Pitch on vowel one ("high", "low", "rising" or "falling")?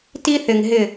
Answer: high